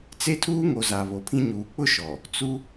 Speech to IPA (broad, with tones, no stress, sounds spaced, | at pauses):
t͡s e˦ tʰ uː˦ ŋ o˨ z a˨ β o˨ pʰ ĩ˦ ɲ uː˨ k͡p ʊ˦ ʃ ɔ˨ | t͡s u˦